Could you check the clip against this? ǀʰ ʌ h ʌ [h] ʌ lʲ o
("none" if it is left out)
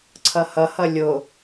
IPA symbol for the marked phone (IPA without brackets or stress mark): h